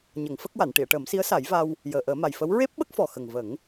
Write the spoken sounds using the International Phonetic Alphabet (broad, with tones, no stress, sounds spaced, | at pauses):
ɲ ə˨˩˦ ŋ f ə˦˥ k̚ w a˨˩˨ n ʈ i˨˩˨ ə̯ ʈ əː˨˩˦ m s i˧˥ ə̯ s a˨˩˦ j v a˧ w | j əː˨˩ ʔ əː˨˩˦ m a˨˩ j f ə˧˥ w ɹ e˦˥ p̚ ɓ ə˦˥ k̚ f ɔ˨˩ x ə˨˩ ŋ v ə˨˩˦ ŋ